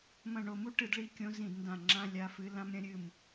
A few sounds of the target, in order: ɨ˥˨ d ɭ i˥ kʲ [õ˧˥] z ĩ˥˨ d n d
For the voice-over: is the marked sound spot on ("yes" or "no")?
yes